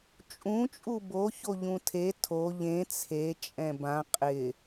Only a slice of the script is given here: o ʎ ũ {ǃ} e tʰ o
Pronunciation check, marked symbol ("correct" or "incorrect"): incorrect